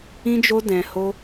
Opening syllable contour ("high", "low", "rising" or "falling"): high